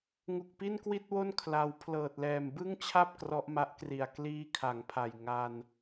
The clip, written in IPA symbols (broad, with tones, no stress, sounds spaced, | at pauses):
ŋ u˨˩ k̚ p i˥˩ n k w i˥˩ t̚ w o˥˩ n kʰ l a˧ w pʰ l ɤː˨˩ t̚ l ɛː˨˩ m b ɯ˥˩ ŋ t͡ɕʰ a˥˩ p̚ k r ɔ˦˥ ʔ m a˦˥ ʔ k r i˨˩ a̯ k l iː˦˥ kʰ a˩˦ ŋ pʰ a˨˩ j ŋ a˧ n